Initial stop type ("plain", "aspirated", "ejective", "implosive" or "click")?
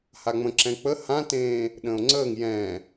click